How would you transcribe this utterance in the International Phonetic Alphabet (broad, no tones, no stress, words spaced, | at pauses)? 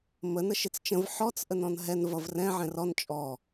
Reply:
mə nəʃɪt͡st͡ʃə̃v ħɔt͡s ʔənɔ̃nɦɛn vʌvrɛ̃ ʕɛ̃rɔn t͡ʃʼɔ